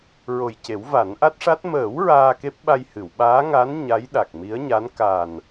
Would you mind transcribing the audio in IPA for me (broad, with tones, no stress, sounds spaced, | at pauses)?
ɹ o˨˩ j c e˨˩˦ w v a˨˩˦ n ʔ a˦˥ t̚ ʂ a˦˥ t̚ m əː˨˩˦ w ɹ aː˧ k e˦˥ p̚ ɓ a˧ j h ɨ˨˩˨ w ɓ aː˧˥ ŋ a˧˥ n ɲ a˧˥ j ɗ a˨˩ k̚ m i˧˥ ə̯ ɲ a˧˥ n k a˨˩ n